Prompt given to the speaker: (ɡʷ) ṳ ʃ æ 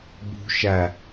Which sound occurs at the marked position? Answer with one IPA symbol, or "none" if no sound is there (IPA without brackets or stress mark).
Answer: b